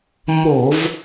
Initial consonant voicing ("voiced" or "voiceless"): voiced